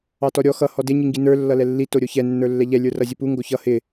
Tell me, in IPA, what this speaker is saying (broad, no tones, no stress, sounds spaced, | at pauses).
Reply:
ɑ t ɔ ɾʲ ɔ x ʌ h ɔ d ɪ ɲ i ŋ ɡ i n ə˞ lː ʌ l ɛ lː i t o ɾʲ o ç ɛ nː ə˞ lː ɛ ʎ ɛ lʲ ə˞ r ʌ zʲ ʌ p u ŋ ɡ o ç ʌ h ɪ